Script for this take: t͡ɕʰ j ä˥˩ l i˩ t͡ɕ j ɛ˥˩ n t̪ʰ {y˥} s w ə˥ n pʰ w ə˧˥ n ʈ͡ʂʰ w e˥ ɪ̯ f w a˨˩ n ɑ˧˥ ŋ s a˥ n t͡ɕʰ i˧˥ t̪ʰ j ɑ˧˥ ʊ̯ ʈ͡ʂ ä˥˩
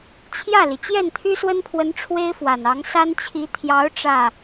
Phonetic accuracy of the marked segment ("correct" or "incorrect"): correct